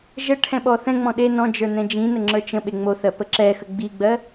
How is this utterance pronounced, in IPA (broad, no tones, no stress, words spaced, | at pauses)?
ʒə ʈʰɛ̃ɓɔθɛ̃ŋ͡mɔ̃ ɗe nɔ̃d͡ʒə˞ nɛ̃d͡ʒĩnə ŋ͡ǁə˞t͡ʃə̃ɓe ŋ͡moθɜ pəǁɛxə ɡ͡biɡ͡bɜ